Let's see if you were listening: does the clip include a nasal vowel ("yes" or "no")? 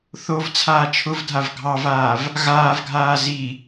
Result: no